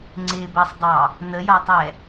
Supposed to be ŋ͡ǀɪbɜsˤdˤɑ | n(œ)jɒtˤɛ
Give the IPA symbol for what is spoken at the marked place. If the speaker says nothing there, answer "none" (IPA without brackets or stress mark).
ə